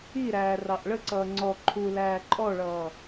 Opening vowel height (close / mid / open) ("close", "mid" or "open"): close